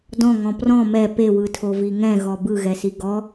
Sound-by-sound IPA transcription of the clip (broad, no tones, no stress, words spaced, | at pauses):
dɔ̃ŋɔ̃ prɔ̃ mɛ pewɯtʰovi ŋɛ̃ɣɔ bɯɣɛsi ɡɔ